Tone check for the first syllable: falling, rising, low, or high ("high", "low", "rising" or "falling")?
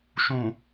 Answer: low